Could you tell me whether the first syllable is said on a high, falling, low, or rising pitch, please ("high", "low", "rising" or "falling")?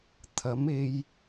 rising